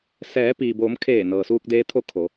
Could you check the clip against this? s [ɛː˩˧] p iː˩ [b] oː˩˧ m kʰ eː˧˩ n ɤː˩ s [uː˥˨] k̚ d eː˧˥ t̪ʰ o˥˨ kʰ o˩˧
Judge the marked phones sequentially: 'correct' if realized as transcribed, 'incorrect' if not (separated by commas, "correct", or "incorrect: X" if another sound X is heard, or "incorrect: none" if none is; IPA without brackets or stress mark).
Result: correct, correct, incorrect: uː˧